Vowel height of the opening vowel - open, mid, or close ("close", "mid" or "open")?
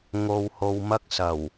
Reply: mid